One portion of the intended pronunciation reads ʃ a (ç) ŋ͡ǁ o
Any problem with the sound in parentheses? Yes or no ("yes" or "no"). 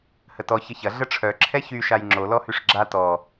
yes